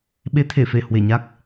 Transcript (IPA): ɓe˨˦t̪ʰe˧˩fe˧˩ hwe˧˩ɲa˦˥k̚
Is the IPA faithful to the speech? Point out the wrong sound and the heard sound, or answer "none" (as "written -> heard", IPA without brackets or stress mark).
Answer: none